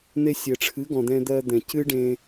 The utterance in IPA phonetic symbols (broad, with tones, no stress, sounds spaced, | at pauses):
n̪ e˧ sʲ ɘ˨ ʈ͡ʂʰ ɨ˨˦ ɡ ɔ̃˨ d̪ ɛ̃˧ d̪ ɜ˧ d̪ ɛ̃˨ c ɨ˦ ɖ ẽ˧